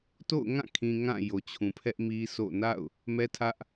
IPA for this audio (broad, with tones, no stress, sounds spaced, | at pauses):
t o̰˦˨ ʊ̯ ŋ ã˦˨ kʰ ĩ˨ ŋ ã˦˨ j o˨ t͡ɕʰ ũ˨ pʰ ɛ˦ ʔ m i˦ s o̰˦˨ n a̰˦˨ ʊ̯ | m ɛ˦ tʰ ä˦ ʔ